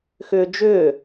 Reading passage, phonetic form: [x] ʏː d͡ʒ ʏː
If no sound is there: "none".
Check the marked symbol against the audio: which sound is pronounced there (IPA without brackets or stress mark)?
x